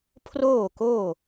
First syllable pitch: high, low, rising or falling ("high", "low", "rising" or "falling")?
falling